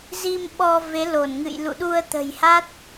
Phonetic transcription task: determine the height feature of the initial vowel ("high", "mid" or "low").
high